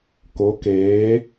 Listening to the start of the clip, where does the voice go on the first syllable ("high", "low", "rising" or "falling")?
rising